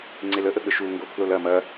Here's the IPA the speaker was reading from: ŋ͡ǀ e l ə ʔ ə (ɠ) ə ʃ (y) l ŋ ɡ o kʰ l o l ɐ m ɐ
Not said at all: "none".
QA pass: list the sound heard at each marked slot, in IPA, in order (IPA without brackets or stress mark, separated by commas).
ɠ, u